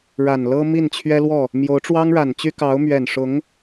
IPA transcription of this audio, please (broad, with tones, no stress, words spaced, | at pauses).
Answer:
ɻa˨˩nlɤ˥ mi˥˩nt͡ɕʰɥɛ˥lwɔ˥˩ | mjo˧˥ʊ̯ʈ͡ʂwɑ˥ŋɻa˨˩n t͡ɕy˥kɑ˧˥ʊ̯ mɥɛ˨˩nʂʊ˧˥ŋ